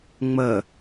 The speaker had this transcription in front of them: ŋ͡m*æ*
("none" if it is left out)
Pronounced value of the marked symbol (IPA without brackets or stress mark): ə